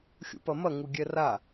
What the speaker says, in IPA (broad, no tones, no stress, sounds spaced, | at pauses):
xʲ ṵ p ɐ m ɐ ŋ u ɡʲ ɛ r a